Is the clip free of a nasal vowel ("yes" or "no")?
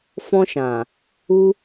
no